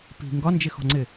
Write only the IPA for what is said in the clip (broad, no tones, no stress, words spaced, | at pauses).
pi̤ ŋɡɒnd͡ʒɪxɔ̤ŋ͡ǀɪ